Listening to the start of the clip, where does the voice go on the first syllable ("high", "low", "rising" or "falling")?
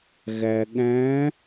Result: low